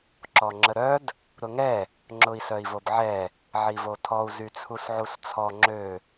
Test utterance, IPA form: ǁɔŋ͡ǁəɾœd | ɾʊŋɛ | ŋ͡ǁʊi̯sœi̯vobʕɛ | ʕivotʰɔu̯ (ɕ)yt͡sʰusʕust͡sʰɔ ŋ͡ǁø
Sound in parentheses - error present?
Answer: yes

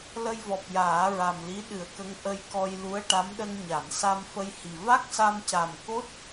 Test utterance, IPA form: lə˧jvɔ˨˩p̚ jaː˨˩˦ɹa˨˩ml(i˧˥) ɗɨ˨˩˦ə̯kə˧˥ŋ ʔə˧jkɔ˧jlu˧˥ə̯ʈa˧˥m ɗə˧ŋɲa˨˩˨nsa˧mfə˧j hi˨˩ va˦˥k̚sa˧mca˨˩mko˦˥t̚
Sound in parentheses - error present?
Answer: no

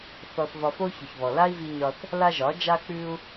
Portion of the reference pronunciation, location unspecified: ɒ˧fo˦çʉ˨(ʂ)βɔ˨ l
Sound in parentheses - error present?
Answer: yes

